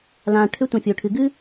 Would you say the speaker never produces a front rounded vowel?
no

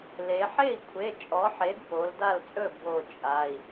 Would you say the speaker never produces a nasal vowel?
yes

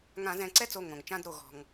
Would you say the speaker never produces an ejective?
yes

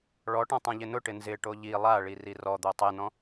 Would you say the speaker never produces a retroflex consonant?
no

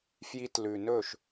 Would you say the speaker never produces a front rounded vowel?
yes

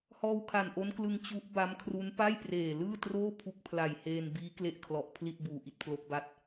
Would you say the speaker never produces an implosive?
yes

